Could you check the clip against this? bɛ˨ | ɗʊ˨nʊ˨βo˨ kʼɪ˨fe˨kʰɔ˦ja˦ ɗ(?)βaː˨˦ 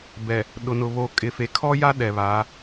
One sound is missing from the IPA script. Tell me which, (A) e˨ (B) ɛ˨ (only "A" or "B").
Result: B